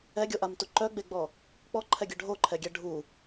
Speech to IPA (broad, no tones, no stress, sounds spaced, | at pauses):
ɛ ɡʲ o ʔ a m t u ǃ œ ɡ͡b e ɡ͡b ɔ | k͡p ɔ ǃʰ ɛ ɡʲ œ ɖʱ o ǃʰ ɛ ɡʲ ɛ ɖʱ u